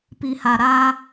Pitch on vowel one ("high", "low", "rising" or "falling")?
low